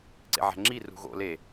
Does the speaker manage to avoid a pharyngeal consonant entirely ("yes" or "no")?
no